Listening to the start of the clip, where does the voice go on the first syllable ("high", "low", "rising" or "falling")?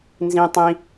high